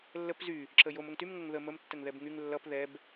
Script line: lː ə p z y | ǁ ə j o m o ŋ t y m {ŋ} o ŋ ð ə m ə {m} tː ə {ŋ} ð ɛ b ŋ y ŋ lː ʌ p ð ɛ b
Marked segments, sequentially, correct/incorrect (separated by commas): correct, correct, correct